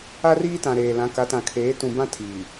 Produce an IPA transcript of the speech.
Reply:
a˦riː˦tã˨ ɾeː˨lã˨˦ ka˨˦tã˨kʰeː˨˦ tũ˨bã˦ tʰiː˨

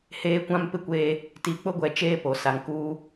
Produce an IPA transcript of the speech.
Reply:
heː˦kʷã˦mpɪ˦kʷeː˦ | ti˨k͡pʊ˦ɡʷɛ˨ t͡ʃeː˦po˨sa˨ŋkuː˦

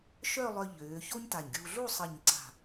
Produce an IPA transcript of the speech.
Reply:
ʃœ˥˧lˠœ˧ ʎøː˩˧ ço˥ɲta˧˩ɲɡʲuː˧ ɮu˥˧ sˤə˧˩ɲǀa̤˧˩

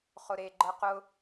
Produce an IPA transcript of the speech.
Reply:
χʊɾeɡ͡ǃɤ qʊ

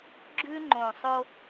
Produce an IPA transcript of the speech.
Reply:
ɡ͡ǁʉ˦ ŋ͡ǃõ˨sˤo˦

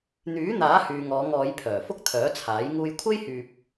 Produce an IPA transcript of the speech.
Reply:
n̪yː˨˥n̪aː˨˥ hyː˨ŋɔː˨˧ŋɔː˨˧j pʰœː˨˩fʊ˥k̚t̪ʰœː˨˥t͡sʰaː˨˥j ŋuː˧jkʷʰe˥jhyː˨p̚

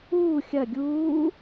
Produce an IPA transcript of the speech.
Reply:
uː xʲɐ ɡʲuː

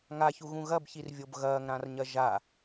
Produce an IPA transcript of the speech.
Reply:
ŋaçuɣũ ɣɐbçirvʲob ɣɐːŋɾãrɲɐ ʒa

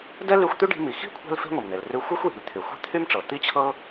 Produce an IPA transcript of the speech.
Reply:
dɛ˥ly˧xʷ t̪y˥ɖi̤˧mi˩ xi̤˥ kʷʰɛ̤˥lfe̤˥ŋʷɛ˩mn̪e˩l rʉ˧ xʷɤ˥xʷji̤˩l t̪ʰy˩xʷe̤˥t̪ʰy˥mʈ͡ʂɤ˩ t̪i˥t͡ɕʰɤ˥

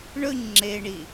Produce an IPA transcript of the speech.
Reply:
ɳɵɲ ŋ͡ǁe ɳi

